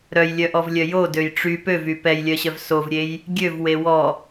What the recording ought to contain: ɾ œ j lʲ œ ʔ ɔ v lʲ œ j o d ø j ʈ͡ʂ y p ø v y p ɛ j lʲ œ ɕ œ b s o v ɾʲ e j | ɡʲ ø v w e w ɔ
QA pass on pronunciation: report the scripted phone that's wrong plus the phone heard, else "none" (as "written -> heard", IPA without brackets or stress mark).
b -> v